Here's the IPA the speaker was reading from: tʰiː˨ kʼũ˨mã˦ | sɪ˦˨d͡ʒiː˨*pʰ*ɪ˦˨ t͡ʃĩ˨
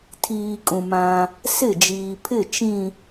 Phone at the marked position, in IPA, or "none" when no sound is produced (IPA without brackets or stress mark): pʰ